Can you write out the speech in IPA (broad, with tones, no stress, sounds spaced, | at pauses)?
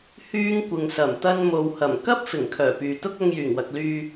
h yː˥ ŋ kʷ ɪ˨ ŋ s ɐ˨˩ m t̪ ɐ˥ n m o˨ w h ɐ˨˩ m k ɐ˥ p̚ f ɪ˨˩ ŋ kʰ œː˨˩ p yː˨ t̪ ʊ˥ k̚ ɐ˧ ŋ j yː˨˩ ŋ w ɐ˨ k̚ l yː˧